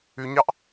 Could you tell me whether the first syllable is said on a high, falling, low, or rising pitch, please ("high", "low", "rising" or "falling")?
low